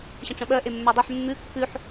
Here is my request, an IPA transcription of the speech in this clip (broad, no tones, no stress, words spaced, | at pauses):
ɕə̃ʈ͡ʂə̃ɓɜ ʔemːə˞dˤʉħ mːʉ kːʉħ